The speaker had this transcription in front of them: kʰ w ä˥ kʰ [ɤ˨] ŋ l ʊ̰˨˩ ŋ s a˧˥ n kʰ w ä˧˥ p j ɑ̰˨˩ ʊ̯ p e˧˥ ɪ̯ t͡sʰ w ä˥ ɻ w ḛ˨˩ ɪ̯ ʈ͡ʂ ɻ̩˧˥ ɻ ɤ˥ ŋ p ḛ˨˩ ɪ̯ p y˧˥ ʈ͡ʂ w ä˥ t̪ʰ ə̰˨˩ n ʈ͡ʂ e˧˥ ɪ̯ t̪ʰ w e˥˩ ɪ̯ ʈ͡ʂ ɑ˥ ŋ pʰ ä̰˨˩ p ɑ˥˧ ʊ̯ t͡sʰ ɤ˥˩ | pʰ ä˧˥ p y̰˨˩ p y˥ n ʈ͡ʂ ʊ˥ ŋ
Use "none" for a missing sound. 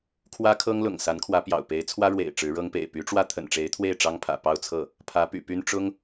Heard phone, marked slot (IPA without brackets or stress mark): ɤ˥